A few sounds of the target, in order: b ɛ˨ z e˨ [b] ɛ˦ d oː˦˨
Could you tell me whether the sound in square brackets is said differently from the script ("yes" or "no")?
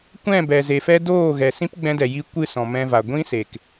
yes